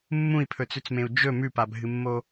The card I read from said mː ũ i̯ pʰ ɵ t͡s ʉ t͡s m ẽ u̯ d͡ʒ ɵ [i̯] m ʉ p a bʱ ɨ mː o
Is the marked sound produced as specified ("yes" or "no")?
no